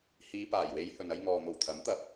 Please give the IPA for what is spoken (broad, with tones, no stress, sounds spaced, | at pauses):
h iː˨˧ p aː˨˩ j w e˨˧ j h ɵ˨ n ɐ˧ j ŋ ɔː˨ n̪ o˨˩ w t̪ʰ ɐ˨˥ m t̪ ɐ˧ p̚